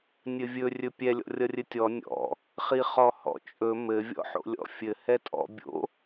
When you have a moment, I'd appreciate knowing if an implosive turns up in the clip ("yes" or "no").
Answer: no